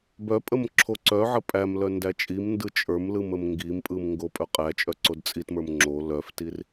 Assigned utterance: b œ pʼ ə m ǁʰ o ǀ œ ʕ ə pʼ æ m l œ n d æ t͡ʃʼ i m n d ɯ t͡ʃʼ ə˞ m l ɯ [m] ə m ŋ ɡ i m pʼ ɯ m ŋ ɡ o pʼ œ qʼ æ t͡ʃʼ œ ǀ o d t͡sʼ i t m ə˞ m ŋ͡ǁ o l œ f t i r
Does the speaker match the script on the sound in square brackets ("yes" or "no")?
yes